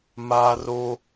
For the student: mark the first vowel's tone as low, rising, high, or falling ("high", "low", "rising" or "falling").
high